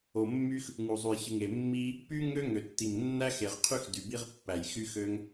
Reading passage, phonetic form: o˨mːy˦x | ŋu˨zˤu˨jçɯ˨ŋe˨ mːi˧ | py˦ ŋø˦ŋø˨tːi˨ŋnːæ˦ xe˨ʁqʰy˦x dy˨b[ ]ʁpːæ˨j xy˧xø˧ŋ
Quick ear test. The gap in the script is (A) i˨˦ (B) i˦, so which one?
B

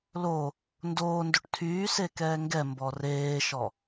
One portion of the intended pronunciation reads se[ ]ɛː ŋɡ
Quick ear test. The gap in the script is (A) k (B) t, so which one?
A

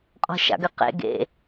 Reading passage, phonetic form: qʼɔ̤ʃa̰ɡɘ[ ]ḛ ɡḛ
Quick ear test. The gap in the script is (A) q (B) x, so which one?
A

